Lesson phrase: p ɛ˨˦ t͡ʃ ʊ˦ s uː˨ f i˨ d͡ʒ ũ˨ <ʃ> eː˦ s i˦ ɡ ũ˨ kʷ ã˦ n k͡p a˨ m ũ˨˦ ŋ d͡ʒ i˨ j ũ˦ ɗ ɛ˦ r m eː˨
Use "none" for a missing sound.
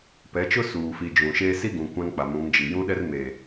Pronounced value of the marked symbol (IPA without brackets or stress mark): ʃ